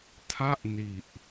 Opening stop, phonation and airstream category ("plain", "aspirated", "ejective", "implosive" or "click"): aspirated